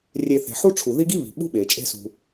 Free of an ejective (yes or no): no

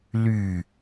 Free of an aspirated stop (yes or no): yes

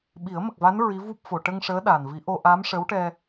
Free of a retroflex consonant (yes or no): no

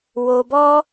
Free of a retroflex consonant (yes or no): yes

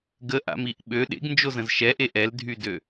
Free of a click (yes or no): yes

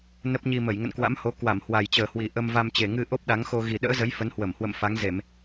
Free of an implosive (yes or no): no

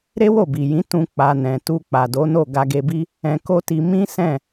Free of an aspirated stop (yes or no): yes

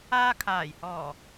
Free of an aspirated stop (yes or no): no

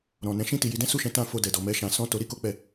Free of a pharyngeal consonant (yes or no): yes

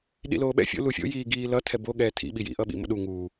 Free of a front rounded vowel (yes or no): yes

